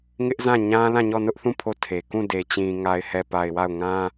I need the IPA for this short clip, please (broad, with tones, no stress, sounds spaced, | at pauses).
ŋ ɪ˦ ʔ z ã˦˨ ɲ ã˦ l ã˦˨ ɲ ɔ˦˨ n ʊ˦ ʔ θ ũ˦˨ pʰ o˦˨ tʰ e˨ k ũ˦˨ d e˨ t͡ɕ ĩ˨ ŋ a˨ ɪ̯ h ɛ˨ p a˨ ɪ̯ w a˦˨ ʊ̯ ŋ ã˦